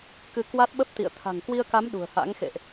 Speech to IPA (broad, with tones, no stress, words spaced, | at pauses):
kɨ˧ kwa˦˥t̚ɓə˦˥p̚t̪ḭ˧˨ə̯ t̪ʰa̤˨˩ŋkwi˧ə̯ka˨˦m ɗṳ˨˩ə̯ha̰˧˥ŋxḛ˧˨ʔ